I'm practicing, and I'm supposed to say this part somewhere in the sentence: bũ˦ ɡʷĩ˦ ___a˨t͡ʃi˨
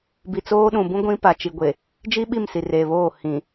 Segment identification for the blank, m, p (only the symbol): p